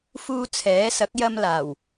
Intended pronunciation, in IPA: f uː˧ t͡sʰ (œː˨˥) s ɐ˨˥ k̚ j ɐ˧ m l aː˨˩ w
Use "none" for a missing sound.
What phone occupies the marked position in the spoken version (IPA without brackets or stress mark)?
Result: ɛː˨˥